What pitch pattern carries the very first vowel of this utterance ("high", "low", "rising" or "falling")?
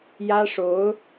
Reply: high